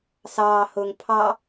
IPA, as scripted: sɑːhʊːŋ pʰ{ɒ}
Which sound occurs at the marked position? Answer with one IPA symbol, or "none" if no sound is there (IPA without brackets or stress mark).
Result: ɑ